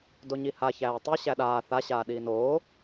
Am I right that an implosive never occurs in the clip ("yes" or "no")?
no